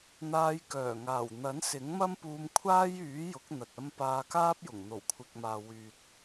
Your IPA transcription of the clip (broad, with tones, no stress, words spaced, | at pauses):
n̪aː˧jkœː˨˩ŋaː˨˩w n̪ɐ˨˥nsɪ˨˥ŋmɐ˥mpuː˧m kʷʰaː˥jyː˨˥ jʊ˨˥k̚n̪ɐ˨t̚ ɐ˧m paː˧kaː˥p̚jʊ˨˩ŋ n̪o˨˩wkʷʰɪ˨k̚maː˨ wyː˨t̚